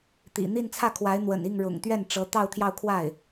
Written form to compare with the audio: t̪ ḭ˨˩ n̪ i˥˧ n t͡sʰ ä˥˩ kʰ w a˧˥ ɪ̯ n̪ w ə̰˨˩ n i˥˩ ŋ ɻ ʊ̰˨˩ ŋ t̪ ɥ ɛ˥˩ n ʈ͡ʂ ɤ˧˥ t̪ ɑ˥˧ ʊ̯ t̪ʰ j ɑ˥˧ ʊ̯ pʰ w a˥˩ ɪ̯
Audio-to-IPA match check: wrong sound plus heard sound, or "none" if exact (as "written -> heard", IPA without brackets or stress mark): pʰ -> kʰ